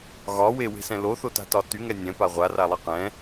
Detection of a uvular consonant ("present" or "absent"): present